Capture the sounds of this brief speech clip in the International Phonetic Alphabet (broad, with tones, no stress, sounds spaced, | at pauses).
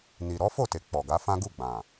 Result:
n i˨ ɾ ɔ˨˦ f o˦˨ t e˨ k͡p ɔ˨ ɡ a˨˦ f ã˦ ɡ u˦˨ ɡ͡b ã˨